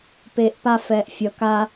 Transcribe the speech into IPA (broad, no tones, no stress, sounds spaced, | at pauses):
p eː ʔ p a f ɛː ʔ fʲ ʌ k a